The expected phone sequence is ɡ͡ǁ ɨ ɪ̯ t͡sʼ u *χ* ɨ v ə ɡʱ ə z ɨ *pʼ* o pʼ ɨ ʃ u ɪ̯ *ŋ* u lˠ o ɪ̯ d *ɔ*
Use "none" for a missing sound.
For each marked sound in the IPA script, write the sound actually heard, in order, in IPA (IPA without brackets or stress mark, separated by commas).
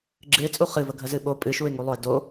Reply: χ, ɓ, ŋ, o